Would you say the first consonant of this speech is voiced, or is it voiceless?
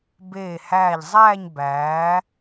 voiced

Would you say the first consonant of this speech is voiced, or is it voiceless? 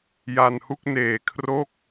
voiced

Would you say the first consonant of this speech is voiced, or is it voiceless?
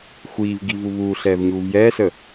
voiceless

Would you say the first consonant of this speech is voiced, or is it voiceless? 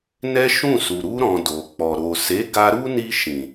voiced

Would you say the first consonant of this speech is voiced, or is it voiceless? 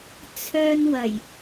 voiceless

